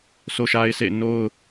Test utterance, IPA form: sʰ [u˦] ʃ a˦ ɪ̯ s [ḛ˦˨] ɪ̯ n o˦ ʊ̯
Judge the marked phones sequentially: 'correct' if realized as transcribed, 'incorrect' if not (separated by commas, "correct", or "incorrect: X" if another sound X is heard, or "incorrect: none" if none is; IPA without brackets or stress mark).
incorrect: o˦, correct